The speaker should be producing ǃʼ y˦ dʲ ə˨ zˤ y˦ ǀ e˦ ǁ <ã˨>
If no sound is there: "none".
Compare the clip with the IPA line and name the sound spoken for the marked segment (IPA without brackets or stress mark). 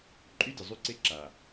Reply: a˨